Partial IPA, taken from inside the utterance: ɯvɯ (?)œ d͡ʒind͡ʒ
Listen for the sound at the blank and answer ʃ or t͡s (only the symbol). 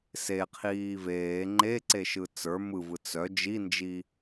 t͡s